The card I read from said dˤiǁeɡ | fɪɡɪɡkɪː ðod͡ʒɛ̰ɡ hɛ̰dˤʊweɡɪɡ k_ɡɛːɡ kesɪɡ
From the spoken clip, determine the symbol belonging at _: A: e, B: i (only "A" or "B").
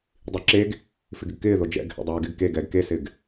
A